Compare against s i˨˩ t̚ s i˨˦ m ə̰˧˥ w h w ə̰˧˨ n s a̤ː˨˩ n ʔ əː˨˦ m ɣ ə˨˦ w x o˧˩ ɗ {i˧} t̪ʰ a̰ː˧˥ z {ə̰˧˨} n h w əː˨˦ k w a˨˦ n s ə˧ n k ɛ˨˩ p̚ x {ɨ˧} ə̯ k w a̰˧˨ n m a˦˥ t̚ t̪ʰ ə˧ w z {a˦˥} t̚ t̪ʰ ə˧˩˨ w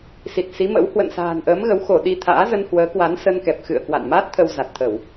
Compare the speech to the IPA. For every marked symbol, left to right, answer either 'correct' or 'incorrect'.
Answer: correct, incorrect: ə˧, incorrect: ɨ̰˧˨, incorrect: a˨˩

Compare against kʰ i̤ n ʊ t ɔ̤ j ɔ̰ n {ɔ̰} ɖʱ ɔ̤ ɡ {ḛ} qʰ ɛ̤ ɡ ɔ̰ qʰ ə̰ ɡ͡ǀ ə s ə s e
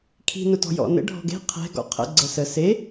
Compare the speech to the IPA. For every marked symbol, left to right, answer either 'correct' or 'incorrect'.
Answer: incorrect: ə̰, incorrect: e̤

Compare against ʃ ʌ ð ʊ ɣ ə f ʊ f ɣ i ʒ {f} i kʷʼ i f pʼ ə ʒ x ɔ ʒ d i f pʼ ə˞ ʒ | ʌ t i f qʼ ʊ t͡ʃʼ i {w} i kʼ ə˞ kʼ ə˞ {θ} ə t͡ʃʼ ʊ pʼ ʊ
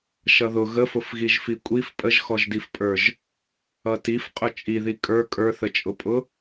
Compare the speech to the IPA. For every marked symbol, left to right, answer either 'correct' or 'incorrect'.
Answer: correct, incorrect: ð, correct

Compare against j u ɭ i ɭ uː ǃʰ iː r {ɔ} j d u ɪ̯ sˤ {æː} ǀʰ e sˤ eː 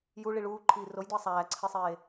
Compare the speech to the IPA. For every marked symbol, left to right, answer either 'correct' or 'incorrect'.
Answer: incorrect: o, correct

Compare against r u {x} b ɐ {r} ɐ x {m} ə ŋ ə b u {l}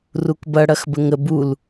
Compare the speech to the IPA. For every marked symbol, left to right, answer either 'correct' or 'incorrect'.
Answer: incorrect: k, incorrect: ɽ, incorrect: b, correct

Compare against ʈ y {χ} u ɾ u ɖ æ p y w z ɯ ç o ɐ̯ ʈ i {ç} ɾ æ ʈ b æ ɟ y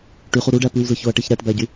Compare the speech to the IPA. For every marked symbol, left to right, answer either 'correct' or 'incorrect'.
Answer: correct, correct

